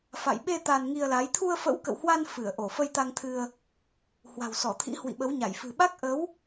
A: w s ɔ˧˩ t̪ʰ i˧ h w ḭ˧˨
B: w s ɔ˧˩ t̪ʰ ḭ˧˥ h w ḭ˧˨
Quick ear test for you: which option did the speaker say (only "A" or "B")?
B